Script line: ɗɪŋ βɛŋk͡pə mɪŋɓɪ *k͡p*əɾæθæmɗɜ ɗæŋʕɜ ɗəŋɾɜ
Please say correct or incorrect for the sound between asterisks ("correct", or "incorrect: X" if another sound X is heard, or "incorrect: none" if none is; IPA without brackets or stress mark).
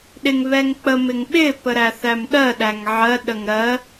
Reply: incorrect: p